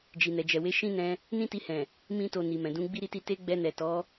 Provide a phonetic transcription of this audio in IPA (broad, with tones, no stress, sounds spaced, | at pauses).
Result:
d͡ʒ i˨ n ɛ˨ d͡ʒ ɛ˨ w e˨˦ ʃ ĩ˦ n ɛ̃˧ | n ĩ˦ t i˧ h ɛ̃˨ | m ĩ˦ t o˧ n i˨ m ɛ̃˨ d ũ˨˦ ɡ͡b i˦ ɾ i˦ t i˦ t e˦ ɡ͡b ɛ˧ n ɛ˨ t ɔ˨˦